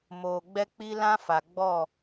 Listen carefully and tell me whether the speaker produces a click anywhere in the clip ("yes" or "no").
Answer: no